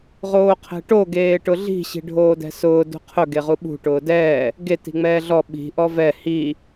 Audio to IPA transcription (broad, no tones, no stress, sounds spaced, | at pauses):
ʁ oː qʰ ɛ̤ ʈ o ɡ eː ʈ ʊ ɮ i̤ ɕ i̤ ɖʱ oː d ɛ̤ s ʊː d ṳ qʰ ʊ ɡ e ʁ u ɓ ṳ ʈ ʊː d ɛː | ɡ e t i̤ ŋ͡m ɛː ɮ ɔ ɓ i̤ ʔ ɔ v ɛ h i